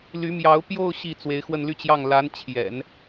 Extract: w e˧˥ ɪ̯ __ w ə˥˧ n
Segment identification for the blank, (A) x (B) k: A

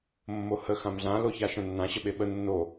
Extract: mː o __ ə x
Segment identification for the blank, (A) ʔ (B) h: B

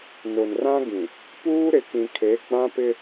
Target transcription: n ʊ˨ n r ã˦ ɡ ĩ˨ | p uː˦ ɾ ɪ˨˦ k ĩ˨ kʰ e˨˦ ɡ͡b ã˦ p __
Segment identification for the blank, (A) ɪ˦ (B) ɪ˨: A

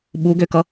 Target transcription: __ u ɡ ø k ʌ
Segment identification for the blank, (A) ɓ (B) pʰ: A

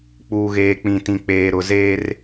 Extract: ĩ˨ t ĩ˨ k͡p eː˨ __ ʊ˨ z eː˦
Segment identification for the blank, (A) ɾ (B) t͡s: A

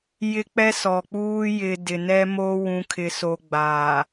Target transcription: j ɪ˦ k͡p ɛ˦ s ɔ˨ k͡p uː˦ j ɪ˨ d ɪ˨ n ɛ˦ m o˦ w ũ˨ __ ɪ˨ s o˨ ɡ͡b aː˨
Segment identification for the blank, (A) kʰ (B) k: A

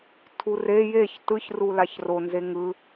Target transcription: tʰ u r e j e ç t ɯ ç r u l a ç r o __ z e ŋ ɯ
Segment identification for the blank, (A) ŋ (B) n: B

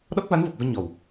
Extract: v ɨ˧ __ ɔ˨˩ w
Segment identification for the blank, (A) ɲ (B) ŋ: A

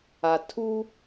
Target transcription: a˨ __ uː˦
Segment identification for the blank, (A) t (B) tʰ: B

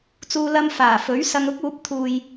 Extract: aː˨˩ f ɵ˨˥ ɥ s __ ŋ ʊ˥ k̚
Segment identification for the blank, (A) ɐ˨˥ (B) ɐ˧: B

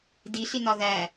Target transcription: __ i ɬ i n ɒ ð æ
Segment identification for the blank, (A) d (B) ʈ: A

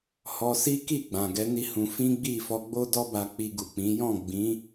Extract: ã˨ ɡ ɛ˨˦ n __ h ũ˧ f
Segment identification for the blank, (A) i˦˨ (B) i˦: B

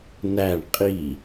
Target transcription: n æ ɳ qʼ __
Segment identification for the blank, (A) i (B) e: A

